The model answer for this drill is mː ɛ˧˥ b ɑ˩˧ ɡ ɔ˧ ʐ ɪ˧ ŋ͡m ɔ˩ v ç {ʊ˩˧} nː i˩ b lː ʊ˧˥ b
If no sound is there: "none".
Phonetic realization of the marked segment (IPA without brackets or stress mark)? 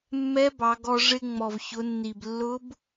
ʊ˩˧